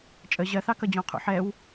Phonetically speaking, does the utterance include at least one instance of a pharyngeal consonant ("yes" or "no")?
yes